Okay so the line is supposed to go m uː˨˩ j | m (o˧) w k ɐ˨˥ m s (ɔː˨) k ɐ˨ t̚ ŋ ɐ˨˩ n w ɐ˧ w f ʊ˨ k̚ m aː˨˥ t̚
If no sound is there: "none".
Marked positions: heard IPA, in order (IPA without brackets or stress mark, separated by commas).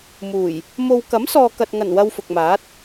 o˧, ɔː˨